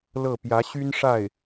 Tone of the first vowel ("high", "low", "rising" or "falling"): falling